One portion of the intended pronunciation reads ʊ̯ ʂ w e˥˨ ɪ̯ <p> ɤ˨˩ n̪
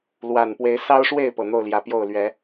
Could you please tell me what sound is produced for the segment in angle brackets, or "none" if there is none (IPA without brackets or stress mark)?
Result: p